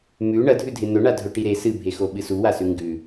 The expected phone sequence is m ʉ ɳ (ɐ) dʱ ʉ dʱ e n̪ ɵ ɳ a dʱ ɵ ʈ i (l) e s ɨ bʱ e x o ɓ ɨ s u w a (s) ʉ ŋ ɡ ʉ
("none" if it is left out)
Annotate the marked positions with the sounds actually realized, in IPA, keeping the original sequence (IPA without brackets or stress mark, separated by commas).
ɐ, ɾ, s